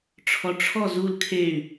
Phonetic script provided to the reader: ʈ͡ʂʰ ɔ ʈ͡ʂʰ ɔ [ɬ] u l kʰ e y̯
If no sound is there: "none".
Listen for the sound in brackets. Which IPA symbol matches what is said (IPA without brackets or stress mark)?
z